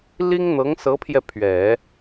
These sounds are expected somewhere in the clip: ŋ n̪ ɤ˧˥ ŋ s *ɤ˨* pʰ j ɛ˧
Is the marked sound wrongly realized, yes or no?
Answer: yes